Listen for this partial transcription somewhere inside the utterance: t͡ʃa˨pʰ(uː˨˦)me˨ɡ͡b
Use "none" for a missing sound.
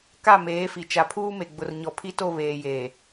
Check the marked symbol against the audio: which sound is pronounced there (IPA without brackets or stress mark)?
uː˦